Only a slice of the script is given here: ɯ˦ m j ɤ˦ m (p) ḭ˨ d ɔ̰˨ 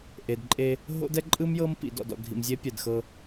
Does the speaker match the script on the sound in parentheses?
yes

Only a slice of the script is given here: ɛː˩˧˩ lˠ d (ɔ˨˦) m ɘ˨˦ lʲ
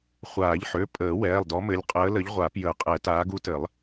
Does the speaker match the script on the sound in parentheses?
yes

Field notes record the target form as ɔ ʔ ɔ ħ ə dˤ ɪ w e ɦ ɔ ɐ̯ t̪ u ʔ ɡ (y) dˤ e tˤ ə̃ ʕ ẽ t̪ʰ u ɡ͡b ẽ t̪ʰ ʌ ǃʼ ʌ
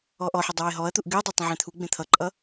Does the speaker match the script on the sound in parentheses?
yes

